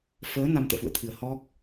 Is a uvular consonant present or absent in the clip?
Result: absent